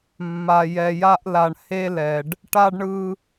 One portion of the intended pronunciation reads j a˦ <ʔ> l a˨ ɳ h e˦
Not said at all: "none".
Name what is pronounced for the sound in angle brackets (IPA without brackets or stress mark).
ʔ